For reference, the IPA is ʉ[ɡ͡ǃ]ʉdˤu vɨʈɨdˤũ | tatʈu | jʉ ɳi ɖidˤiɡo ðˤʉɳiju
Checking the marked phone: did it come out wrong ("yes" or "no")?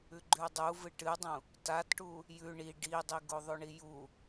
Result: no